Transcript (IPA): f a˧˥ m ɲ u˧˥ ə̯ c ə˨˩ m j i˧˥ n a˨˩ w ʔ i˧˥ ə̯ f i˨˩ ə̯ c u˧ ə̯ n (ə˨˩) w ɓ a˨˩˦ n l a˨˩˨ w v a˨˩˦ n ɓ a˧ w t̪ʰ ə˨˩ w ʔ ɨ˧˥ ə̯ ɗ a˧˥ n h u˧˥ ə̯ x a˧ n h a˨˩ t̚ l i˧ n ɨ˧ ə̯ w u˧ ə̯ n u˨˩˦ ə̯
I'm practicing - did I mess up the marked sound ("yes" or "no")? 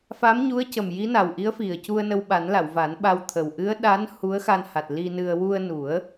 yes